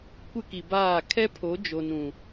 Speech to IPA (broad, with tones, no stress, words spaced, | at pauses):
kʷɪ˦ki˨baː˦˨ kʰɛ˦ pʰo˨˦d͡ʒo˨nũ˨